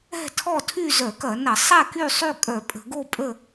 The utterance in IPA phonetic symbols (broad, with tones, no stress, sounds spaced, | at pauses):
ɛ̤˥˨ tʰ ɔ˥˨ tʰ y˥˨ z œ˧˩˧ k ɐ˧˩˧ n ɐ˧˩˧ sˤ ɛ˥˨ k y˥˨ sˤ y˥˨ kʼ œ˧˩˧ pʼ ə̤˧˩˧ ɡ o˥˨ pʼ ə˥˨